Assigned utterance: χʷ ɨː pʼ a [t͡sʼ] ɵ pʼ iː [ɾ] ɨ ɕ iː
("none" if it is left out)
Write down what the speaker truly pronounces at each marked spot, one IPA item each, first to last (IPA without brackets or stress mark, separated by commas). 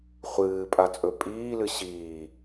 t͡sʼ, l